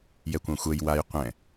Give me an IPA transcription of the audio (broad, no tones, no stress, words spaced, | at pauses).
jɛkʷãxʷɛj waj qʷɛ̃